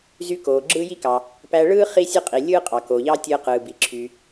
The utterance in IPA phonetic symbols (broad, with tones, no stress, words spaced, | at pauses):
zy˧koː˩ ɡ͡ǁɯː˥ji˥kɑ˩ | pæ˧ɭɯː˥ χi˥sʲɯ˥qʼi˩ lʲɯː˥qʼɑ˩koː˩ʎɑː˥ tʲɯː˧qɯː˩ bi˩ǁʰy˩